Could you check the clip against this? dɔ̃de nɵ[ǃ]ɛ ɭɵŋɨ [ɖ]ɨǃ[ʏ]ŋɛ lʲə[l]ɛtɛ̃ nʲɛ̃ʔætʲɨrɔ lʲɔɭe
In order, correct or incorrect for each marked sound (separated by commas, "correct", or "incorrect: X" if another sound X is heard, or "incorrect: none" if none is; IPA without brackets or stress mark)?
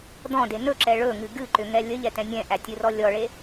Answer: incorrect: ǁ, incorrect: ɡ, correct, incorrect: ʎ